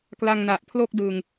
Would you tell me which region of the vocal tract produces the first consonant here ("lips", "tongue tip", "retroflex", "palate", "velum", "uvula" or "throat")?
velum